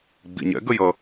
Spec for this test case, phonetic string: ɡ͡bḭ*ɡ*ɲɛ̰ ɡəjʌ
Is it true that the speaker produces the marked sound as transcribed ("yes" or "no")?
no